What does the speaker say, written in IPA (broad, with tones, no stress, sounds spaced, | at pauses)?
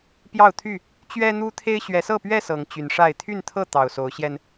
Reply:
p j ɑ˥˨ ʊ̯ t̪ʰ y˥˨ | t͡ɕ ɥ ɛ˦ n̪ u˦ t̪ʰ e˦ ɪ̯ ɕ ɥ ɛ˨˦ s ɤ˥˨ p ɥ ɛ˥˨ s ɤ˨˦ ŋ t͡ɕ y˨˦ n ʂ a˥˨ ɪ̯ t̪ʰ y˥˨ n t̪ʰ ɤ˥˨ t̪ ɑ˨˩ ʊ̯ s o˨˦ ʊ̯ ɕ j ɛ˧ n